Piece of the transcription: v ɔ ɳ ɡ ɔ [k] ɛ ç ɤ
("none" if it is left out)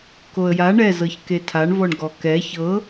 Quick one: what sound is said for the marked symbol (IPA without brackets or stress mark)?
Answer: k